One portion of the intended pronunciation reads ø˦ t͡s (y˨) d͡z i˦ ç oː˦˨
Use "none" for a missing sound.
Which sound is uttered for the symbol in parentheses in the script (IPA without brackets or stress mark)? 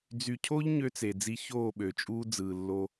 e˨